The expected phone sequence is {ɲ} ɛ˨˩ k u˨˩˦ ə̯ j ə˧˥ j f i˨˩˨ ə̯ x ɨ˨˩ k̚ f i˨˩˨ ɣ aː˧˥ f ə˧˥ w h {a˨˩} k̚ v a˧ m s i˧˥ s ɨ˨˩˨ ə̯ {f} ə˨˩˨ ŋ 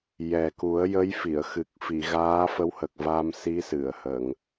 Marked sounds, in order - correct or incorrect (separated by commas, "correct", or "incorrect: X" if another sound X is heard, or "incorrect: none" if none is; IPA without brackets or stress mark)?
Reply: incorrect: j, incorrect: ə˨˩, incorrect: h